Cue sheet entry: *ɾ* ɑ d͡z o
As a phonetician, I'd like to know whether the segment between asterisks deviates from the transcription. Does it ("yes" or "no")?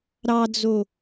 no